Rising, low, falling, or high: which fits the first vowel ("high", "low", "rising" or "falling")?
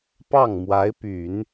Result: falling